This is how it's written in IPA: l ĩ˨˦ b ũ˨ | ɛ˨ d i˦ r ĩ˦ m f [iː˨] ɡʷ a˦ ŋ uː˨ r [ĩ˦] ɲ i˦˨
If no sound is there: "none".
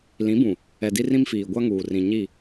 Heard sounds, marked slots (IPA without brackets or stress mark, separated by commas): iː˨, ĩ˨